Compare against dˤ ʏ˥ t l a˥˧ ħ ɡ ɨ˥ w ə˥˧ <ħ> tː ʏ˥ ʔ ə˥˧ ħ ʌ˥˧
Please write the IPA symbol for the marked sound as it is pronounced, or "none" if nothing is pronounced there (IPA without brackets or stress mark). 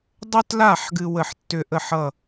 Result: ħ